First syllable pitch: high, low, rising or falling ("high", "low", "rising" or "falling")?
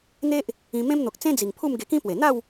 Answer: high